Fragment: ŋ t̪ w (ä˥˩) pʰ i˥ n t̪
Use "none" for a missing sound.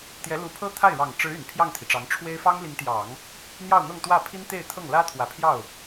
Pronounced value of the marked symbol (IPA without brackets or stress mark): ä˥˩